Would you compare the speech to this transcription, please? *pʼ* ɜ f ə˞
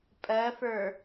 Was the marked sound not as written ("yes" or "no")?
no